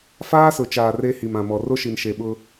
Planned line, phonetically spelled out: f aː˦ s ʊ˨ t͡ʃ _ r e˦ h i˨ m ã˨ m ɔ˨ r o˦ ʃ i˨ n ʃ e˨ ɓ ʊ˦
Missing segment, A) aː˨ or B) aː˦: A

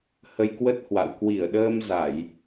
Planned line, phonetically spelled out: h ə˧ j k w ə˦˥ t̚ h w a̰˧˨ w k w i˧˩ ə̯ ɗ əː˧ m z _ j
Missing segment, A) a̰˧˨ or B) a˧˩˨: B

